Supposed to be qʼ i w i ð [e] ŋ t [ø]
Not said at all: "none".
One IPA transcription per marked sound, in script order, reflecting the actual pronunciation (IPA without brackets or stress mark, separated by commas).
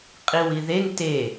e, e